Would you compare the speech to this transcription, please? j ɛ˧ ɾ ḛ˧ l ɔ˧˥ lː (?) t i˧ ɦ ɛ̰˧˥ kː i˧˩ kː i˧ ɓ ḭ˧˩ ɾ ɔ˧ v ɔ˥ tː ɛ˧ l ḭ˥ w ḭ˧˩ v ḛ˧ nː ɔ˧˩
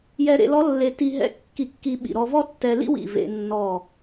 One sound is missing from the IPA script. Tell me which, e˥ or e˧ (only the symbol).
e˧